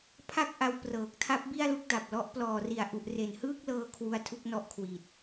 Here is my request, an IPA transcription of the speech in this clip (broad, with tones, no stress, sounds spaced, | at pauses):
pʰ a˥˩ k̚ ʔ a˧ w p r ɤː˨˩ k̚ tʰ a˦˥ p̚ b i˥˩ a̯ l u˥˩ k̚ d a˨˩ p̚ l ɔ˦˥ ʔ p l ɔː˨˩ r i˨˩ a̯ ʔ u˨˩ ʔ r e˨˩ n h ɯː˥˩ k̚ l ɤː˧ kʰ w u˦˥ a̯ tʰ u˦˥ k̚ n ɔ˦˥ ʔ kʰ w i˨˩ t̚